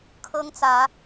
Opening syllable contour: high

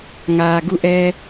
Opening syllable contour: low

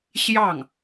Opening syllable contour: falling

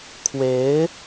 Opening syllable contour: rising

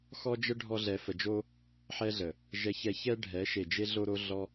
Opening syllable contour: high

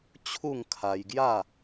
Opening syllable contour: falling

